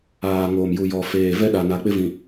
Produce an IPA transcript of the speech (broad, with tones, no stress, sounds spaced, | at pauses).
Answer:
aː˨ ŋ oː˨ m j u˨ j ɔ˨ f eː˨ v ɛ˦ ɗ a˨ n a˨ k͡p ɪ˦ v ĩ˨